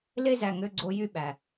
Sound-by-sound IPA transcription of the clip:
l e˦ z æ˨ ŋ ø˦ ɡ͡ǀ o˦ j y˦ ɓ æ˨

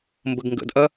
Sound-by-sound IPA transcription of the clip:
m b ə ɡ ŋ ɡ ə̰ d ʔ ɐ

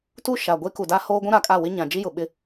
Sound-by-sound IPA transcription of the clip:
t u˦ ʃ a˨ ɡʷ e˦ k u˨ d a˦ h oː˦ ɡʷ ũ˦ ɾ a˨ kʼ a˦˨ w ɪ˦ ɲ ã˨ d͡ʒ i˦ j ʊ˨ ɓ ɪ˦

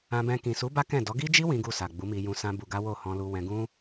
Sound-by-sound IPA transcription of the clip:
ã˧ b ɛ̃˧ k ĩ˨ s u˨˦ b a˦ k ɛ̃˦˨ d ɔ˨˦ ɡ i˦ d͡ʒ i˦ w ĩ˦ ɡ u˦˨ s a˨ ɡ͡b u˨˦ m i˧ j ũ˧ s ã˦ b u˧ ɡ a˦ w o˦˨ h ɔ̃˧ l u˧ w ɛ̃˧ ɡ ũ˦

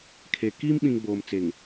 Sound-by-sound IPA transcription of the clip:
kʰ e˨ k iː˦ m ɓ ĩ˨ ŋ ɡ͡b oː˨ m t͡s e˨ ŋ

